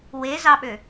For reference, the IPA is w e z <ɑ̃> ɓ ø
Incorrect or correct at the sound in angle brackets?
incorrect: ɑ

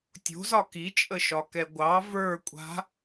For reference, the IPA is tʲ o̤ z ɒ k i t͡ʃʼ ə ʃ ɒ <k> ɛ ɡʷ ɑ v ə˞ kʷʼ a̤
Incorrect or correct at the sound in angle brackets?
correct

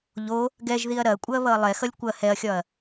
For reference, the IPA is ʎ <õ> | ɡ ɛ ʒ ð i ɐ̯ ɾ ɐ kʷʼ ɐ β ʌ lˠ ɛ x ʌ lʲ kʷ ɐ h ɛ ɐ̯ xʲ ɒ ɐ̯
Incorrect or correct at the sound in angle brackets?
incorrect: o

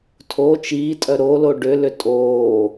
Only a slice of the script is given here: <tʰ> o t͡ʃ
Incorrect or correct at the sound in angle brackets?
correct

